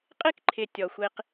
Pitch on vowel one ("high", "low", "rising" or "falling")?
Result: high